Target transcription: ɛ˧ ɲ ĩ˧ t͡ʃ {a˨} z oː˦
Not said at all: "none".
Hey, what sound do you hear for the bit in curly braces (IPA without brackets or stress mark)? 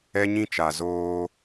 a˨